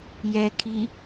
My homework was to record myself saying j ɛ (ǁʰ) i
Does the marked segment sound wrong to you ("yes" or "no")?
yes